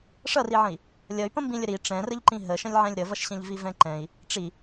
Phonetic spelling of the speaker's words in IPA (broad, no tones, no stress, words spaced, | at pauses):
ʂʌriʕə̃i̯ | lʲʌy̯pə̃ mbĩlʲəɾi ʈ͡ʂɛ̃rəʎǃĩ ɦəʃə̃lʲʕɛ̃lʲ ɾəvʌʃɕɛ̃ʎvi vɛ̃ǃɛ̃i̯ | ʈ͡ʂi